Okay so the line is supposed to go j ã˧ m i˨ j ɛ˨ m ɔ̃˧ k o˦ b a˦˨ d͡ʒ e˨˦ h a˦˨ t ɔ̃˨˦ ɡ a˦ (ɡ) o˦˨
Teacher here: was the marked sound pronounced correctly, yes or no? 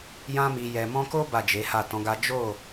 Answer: no